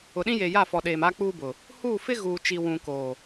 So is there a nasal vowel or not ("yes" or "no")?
yes